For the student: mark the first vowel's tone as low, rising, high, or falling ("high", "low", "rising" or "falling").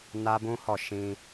high